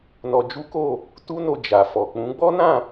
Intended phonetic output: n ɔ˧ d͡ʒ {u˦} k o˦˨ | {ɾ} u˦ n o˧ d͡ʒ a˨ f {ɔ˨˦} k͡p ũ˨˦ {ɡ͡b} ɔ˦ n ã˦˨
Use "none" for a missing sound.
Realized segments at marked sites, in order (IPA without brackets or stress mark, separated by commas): u˦, t, ɔ˨, ɡ͡b